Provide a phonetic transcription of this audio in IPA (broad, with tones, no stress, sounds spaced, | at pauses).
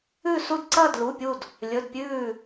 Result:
ʉ˥˧ s u˥˧ d ǀ ɐː˥˧ d l u˧˥˧ pʲ u˥˧ d | lʲ ɵ˧˥˧ d pʲ ʉː˥˧